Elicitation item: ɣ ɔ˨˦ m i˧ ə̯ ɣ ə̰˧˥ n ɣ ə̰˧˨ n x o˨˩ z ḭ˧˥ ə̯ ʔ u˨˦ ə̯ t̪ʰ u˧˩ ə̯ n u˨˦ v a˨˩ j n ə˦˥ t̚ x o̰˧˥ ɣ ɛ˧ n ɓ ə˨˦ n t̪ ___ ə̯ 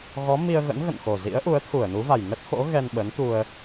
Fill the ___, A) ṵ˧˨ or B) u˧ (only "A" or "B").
B